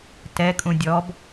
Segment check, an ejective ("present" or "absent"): present